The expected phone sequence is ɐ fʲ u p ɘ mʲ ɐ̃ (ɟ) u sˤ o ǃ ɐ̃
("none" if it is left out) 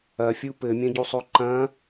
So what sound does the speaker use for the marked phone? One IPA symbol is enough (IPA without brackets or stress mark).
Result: ɟ